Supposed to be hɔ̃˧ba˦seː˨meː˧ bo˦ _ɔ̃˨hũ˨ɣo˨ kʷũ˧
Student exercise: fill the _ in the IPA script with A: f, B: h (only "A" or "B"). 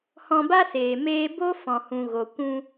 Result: A